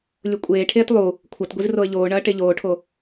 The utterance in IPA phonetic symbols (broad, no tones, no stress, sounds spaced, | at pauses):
lʲ o kʷʼ eː ʈʰ eː t lˠ u | kʷʰ ɐ t ɡʷ i z r o ə̯ ʎ oː ɳ ɐː ʈ e ʎ oː ʈʰ o